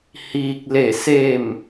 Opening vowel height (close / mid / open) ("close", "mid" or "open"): close